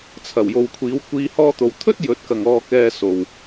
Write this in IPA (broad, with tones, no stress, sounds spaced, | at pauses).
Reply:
t͡sʰ ɐ˨˩ w j o˨ w kʷʰ iː˨˧ w kʷ iː˧ h ɔː˥ t̪ o˧ w t̪ʰ ɵ˥ t̚ j ɵ˨˥ t̚ k ɐ˨ ŋ ɔː˧ k ɛː˧ s o˨ w